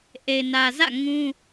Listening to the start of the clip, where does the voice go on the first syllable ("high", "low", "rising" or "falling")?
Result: low